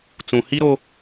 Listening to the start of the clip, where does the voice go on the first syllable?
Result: low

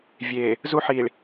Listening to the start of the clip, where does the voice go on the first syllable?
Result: low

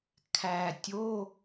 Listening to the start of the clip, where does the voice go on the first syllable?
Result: low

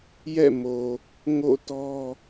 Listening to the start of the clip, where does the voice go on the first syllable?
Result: falling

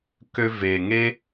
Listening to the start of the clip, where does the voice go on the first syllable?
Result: high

